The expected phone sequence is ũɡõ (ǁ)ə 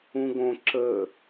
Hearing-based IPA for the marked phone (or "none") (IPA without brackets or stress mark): ǁ